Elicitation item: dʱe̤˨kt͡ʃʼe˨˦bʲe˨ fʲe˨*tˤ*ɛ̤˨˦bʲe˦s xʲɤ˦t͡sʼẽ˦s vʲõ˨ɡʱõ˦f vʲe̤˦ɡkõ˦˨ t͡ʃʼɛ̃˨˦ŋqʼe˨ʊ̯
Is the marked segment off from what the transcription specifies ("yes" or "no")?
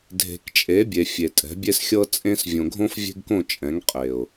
yes